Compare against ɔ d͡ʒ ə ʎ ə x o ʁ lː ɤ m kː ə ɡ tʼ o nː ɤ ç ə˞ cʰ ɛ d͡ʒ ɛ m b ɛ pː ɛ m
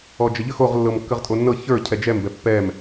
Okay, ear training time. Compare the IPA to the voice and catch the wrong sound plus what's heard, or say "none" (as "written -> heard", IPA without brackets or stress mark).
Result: ɡ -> ʁ